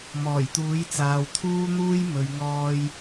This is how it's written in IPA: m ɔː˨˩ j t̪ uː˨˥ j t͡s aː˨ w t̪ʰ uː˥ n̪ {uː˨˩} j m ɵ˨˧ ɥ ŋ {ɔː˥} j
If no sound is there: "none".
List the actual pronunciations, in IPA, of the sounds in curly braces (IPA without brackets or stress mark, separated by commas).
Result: uː˥, ɔː˥